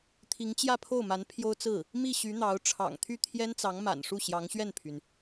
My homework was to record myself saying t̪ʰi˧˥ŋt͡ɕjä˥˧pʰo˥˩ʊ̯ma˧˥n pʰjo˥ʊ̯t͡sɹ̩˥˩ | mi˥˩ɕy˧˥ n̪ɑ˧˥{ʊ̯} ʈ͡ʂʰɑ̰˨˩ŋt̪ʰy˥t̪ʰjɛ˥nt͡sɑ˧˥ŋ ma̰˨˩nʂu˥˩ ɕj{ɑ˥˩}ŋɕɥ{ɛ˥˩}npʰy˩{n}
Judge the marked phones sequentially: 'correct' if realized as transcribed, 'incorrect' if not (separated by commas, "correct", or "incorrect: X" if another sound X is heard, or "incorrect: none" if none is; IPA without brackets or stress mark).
correct, incorrect: ɑ˧˥, correct, correct